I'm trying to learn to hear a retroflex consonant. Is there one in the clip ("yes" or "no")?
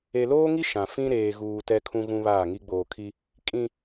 no